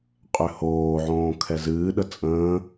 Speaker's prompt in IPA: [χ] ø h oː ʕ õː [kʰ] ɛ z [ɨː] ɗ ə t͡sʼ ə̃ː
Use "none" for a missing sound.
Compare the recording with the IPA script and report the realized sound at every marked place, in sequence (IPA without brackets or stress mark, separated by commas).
qʼ, kʰ, ɨː